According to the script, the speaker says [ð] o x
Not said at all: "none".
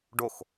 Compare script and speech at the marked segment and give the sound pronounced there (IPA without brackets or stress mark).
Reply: ɖ